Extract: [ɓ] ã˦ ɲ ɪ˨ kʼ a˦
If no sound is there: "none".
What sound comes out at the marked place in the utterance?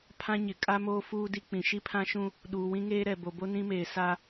pʰ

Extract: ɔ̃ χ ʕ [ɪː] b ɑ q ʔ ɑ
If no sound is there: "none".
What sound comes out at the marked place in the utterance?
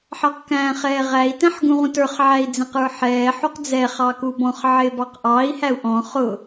ɪː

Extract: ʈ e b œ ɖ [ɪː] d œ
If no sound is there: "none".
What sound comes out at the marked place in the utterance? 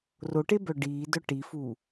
iː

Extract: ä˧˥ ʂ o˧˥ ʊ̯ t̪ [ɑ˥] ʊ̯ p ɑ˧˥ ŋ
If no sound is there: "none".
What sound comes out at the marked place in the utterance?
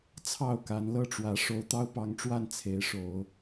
ɑ˥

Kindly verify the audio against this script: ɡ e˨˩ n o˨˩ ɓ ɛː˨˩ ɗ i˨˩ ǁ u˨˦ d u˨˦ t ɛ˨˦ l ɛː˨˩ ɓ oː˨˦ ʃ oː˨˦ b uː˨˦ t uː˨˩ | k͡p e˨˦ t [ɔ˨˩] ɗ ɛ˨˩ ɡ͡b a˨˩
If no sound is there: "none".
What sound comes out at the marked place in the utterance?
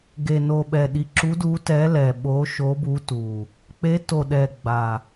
o˨˩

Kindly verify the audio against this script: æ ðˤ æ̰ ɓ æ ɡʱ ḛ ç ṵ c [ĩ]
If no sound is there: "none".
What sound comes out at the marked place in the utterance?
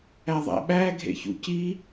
i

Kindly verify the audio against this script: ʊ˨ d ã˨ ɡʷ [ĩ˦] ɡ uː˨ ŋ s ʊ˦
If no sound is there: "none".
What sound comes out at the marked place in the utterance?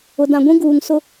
ĩ˦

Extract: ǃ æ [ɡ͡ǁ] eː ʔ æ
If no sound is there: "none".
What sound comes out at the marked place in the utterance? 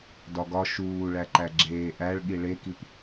ɡ͡ǁ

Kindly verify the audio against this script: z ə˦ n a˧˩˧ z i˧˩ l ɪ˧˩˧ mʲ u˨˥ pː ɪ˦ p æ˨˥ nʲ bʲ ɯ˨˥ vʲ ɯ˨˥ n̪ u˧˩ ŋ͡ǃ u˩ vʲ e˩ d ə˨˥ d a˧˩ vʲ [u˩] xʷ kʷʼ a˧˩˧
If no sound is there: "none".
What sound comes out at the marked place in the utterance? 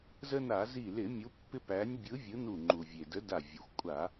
u˩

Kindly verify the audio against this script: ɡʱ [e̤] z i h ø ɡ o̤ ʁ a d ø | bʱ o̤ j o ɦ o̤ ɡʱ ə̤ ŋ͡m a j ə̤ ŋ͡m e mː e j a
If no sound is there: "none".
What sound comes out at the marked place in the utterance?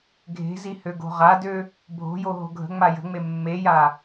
e̤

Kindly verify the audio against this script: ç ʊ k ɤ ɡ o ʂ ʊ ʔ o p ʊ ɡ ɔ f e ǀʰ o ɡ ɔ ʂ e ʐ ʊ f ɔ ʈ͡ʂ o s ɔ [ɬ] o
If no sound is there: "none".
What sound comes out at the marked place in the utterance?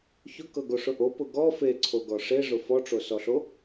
ɬ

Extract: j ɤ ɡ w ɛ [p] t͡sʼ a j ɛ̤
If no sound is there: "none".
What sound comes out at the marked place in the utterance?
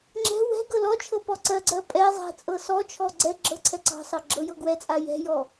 none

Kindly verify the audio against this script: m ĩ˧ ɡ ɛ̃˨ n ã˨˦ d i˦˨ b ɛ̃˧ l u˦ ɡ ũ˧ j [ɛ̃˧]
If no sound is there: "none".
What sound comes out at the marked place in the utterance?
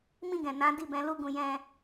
ɛ̃˧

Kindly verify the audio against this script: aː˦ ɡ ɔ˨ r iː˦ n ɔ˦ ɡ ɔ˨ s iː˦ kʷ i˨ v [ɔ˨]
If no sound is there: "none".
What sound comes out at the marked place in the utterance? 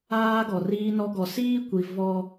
ɔ˦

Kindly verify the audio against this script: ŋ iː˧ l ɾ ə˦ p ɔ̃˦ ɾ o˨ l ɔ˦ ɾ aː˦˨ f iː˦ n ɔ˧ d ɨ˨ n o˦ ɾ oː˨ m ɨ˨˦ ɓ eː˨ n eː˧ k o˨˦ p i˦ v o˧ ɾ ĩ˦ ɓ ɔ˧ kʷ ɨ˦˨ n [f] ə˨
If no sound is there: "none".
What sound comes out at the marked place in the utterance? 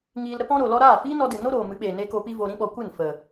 f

